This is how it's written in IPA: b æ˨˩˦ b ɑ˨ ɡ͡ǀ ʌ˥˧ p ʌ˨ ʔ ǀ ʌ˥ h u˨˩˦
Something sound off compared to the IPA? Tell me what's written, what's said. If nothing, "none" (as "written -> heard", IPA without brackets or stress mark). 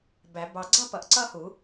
none